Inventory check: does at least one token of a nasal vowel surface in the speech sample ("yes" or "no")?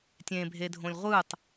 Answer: yes